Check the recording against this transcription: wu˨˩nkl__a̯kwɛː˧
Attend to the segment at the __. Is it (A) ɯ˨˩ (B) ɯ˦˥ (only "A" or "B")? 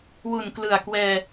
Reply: A